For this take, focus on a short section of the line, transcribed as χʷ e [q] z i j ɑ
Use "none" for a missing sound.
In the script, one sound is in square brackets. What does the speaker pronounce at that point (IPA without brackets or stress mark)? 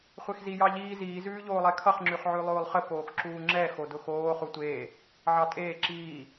x